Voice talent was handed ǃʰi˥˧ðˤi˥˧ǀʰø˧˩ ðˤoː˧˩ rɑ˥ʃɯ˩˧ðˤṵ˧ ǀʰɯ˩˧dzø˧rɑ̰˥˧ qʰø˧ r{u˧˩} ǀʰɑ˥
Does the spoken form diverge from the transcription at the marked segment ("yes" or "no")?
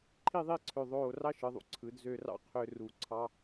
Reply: no